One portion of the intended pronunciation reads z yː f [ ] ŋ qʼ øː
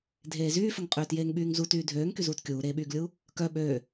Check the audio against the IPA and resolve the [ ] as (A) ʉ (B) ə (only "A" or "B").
B